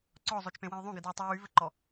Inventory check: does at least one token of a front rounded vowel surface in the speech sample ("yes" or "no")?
yes